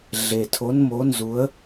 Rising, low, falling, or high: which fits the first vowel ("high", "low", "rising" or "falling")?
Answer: low